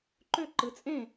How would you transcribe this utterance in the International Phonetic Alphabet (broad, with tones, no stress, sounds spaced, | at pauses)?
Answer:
ǃ ø˥˧ ǃ ɯ˩˧ t͡sʼ ẽː˥˩